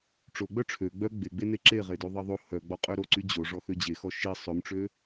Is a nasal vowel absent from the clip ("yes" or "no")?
yes